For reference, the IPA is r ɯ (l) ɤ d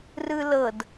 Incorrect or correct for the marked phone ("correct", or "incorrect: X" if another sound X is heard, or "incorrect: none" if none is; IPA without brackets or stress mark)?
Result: correct